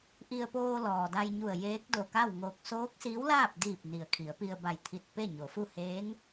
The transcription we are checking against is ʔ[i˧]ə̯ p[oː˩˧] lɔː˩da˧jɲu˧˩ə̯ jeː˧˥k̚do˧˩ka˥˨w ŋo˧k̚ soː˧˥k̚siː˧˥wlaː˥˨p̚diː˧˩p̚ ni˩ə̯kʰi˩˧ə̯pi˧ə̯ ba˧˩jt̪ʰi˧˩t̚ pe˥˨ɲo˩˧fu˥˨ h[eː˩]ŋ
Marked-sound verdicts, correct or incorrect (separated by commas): correct, incorrect, incorrect